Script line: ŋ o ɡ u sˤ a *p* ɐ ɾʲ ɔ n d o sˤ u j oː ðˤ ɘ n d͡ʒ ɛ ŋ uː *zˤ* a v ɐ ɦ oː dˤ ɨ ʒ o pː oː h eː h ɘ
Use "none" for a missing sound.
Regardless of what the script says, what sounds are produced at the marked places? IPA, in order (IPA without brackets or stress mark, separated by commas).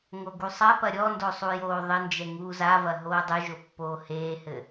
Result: p, z